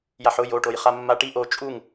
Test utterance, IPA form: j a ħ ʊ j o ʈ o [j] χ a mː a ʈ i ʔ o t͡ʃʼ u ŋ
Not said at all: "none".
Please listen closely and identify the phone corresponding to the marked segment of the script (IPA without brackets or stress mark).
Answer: j